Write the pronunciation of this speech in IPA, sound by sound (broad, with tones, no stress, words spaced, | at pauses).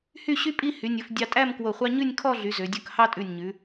hy˥˧ɕy˥pʼi˥˧ hy˩˧nʲɵ˩˧fdʲɑ˧tʼæ˥˧m kwo˧˩χʷɑ˥ ɲʉ˥˧nʲkʰɔ˥˧ɮy˩˧ zø˩˧dʲɵ˥˧k hɑ˥tʼʉ˧˩nʲɲʉ˩˧